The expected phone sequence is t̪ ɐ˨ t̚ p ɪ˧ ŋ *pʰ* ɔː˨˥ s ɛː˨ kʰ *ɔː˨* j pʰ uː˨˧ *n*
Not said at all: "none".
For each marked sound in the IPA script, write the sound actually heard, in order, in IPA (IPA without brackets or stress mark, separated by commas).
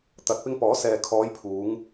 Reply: p, ɔː˨˧, ŋ